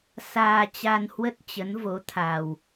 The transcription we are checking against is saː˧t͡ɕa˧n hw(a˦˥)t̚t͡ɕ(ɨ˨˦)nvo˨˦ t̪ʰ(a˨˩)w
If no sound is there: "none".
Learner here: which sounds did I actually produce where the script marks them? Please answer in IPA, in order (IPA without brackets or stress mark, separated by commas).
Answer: ə˦˥, ə˨˦, a˨˩